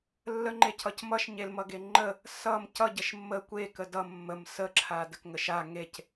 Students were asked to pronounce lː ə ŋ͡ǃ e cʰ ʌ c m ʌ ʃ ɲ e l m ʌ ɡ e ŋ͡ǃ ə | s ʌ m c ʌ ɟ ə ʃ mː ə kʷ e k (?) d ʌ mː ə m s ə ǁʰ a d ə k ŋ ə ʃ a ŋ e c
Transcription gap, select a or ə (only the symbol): ə